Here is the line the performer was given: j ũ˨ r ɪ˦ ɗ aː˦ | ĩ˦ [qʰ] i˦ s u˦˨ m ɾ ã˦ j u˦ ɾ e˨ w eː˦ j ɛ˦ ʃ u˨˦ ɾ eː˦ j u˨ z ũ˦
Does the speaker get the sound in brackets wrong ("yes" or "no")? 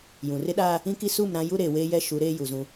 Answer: yes